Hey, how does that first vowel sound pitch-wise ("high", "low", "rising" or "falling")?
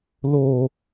high